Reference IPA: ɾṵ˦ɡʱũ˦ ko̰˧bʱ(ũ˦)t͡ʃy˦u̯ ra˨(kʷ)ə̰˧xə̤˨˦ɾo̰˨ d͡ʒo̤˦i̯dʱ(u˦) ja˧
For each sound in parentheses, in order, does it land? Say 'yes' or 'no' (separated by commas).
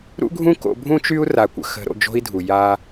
yes, yes, no